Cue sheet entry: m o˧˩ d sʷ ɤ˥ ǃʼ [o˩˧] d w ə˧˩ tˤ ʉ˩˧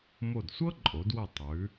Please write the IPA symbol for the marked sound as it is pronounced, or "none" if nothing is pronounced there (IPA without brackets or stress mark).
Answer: o˩˧